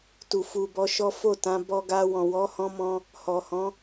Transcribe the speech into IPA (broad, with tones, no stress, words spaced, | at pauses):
tu˨ fu˨bɔ˨˦ʃɔ˦ fo˦˨tã˨˦ bɔ˧ɡa˧ wɔ̃˨wɔ˨˦hɔ̃˧mɔ̃˧ | hɔ˨hɔ̃˨˦